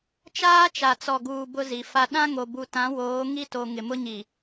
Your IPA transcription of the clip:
t͡ʃ aː˦ t͡ʃ a˨ t͡s ɔ˨ ɡ uː˨ b ʊ˦ z i˨ f a˦ ɗ ã˦ ŋ o˨ b u˨ t ã˨˦ w oː˨˦ ŋ i˦ t o˨ ŋ ɪ˨ m ʊ˦ ɲ i˨

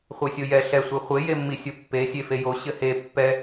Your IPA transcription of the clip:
χʷ e sʲ o j ɛ ɬ ɛ sʷ e χʷ e j e mː i sʲ o pː e sʲ e f e j o ɕ ɘ h e pː ɛ

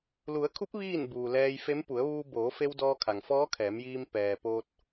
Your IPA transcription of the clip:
l u˩˧ ə̯ kʰ u˧˥ p̚ ʋ iː˥˨ n b uː˩ l ɛː˧ j f e˧˥ m p u˩˧ ə̯ ʋ uː˧ b oː˩˧ f e˧ w d ɔː˧ kʰ a˩ ŋ f ɔː˧˥ kʰ ɛː˩˧ m j iː˧ m p ɛː˩ p oː˧ t̚

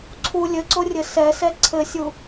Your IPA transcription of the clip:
ǀʰ u lʲ ɘ ǀ o rʲ ɘ s ɛ s ɛ ǀʰ ɘ sʲ u

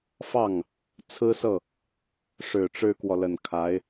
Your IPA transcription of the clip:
f ɑ˥˩ ŋ | t͡sʰ ɹ̩˥ s ɤ˥˩ | ʂ ɻ̩˨˩ ʈ͡ʂ ɻ̩˥ k w ɔ˨ l ə˨˩ n kʰ a˧˥ ɪ̯

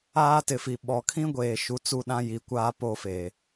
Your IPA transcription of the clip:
aː˦ t ɪ˨ f i˨ ɓ ɔ˨ kʰ ĩ˦ ɡʷ eː˨ ʃ u˨˦ t͡s u˦ ɗ ã˦ j i˨˦ kʷ aː˦ p o˦ f eː˨

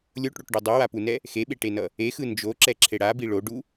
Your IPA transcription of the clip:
lʲ o ʈ ɽ o ʈ ɖ o dˤ u w a p u n ɛ | x e ɓ e ʈ e n ʌ | e x ɯ n d͡ʒ o ǁ ɛ ǁʰ e ɽ a b i ɭ o ɖ u

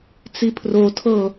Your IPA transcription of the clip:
t͡s i pʰ r o tʰ ɤ

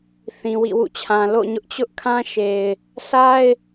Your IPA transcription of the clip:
θ ĩ˨ w ḭ˦˨ w ṵ˦˨ t͡ɕʰ ã˨ l o̰˦˨ ɲ ʊ˦ ʔ t͡ɕ ʊ˦ ʔ kʰ ã˦ ʃ e˨ ɪ̯ | sʰ a˦ ɪ̯

